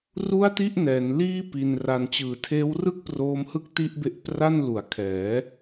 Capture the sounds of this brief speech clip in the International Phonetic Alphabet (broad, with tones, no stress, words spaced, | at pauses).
ru˥˩a̯ti˥˩ʔnɛː˩˦nliː˥˩ pi˧nra˧n t͡ɕɯː˨˩tʰeː˦˥wrɯ˥˩k̚ proː˦˥mhɯ˦˥k̚ ti˥˩ʔbe˦˥ʔ pra˥˩nlu˨˩a̯kʰɛː˩˦